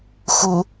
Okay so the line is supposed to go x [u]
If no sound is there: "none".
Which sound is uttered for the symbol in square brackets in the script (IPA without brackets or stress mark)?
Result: u